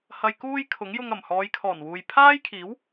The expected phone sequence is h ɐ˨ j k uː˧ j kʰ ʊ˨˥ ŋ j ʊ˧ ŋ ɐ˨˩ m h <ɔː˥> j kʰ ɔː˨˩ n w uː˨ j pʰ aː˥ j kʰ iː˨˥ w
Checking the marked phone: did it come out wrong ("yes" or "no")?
yes